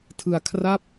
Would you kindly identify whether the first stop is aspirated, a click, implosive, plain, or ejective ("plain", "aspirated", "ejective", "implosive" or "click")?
aspirated